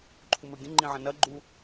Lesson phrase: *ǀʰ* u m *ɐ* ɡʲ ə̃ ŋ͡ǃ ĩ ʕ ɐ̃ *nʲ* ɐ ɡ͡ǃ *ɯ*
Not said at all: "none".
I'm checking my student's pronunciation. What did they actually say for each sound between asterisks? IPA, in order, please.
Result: ǃʰ, ə˞, n, u

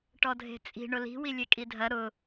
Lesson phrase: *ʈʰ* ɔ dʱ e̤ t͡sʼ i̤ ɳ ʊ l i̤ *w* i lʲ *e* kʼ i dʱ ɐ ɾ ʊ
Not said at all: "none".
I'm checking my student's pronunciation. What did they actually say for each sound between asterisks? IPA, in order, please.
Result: ʈ, w, e

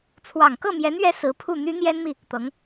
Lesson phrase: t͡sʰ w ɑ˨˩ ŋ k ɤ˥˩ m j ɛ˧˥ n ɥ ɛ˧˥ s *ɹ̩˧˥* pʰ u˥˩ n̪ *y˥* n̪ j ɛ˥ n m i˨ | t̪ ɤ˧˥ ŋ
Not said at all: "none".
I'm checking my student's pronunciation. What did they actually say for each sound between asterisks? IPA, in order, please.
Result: ɹ̩˧˥, y˥

